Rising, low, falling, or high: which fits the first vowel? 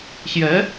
rising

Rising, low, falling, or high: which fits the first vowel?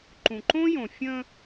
low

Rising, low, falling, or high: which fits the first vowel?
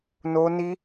high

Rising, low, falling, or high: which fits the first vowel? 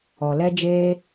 low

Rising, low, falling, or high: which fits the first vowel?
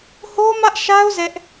high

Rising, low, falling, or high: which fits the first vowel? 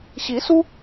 rising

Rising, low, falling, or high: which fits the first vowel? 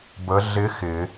rising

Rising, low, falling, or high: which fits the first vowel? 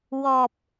low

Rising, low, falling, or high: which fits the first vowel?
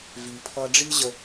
low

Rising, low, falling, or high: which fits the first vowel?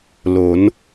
rising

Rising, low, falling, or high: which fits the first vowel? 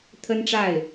high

